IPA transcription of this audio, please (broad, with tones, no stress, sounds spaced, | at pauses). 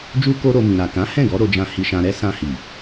d͡ʒ u˦ k o˦ ɾ o˧ m ĩ˨ ɾ a˨ k ã˨˦ h ɛ̃˦˨ ɡ ɔ˨˦ ɾ o˧ d͡ʒ ã˧ h i˧ ʃ ã˧ ɾ ɛ˦ s ã˧ h i˨